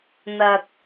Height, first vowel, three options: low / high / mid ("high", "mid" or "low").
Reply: low